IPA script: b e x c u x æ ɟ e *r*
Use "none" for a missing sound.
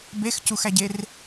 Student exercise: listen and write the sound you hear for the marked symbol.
r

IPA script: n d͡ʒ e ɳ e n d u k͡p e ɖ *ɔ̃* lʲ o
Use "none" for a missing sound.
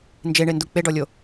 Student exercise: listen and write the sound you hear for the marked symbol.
ɔ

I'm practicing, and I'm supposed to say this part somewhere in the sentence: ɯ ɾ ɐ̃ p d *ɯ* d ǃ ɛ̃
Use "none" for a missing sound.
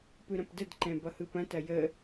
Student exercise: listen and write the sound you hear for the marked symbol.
ə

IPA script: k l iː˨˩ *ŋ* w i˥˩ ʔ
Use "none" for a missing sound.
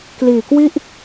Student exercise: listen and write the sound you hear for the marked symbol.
k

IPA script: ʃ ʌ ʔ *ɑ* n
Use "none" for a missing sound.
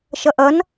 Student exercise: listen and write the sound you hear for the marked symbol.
ʌ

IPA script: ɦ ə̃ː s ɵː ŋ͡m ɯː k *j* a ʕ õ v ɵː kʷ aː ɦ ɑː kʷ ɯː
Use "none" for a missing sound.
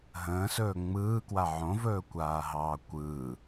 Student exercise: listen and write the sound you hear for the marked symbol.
w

